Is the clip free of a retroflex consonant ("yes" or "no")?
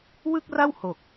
yes